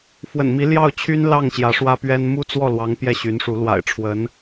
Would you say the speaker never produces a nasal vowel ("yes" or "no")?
yes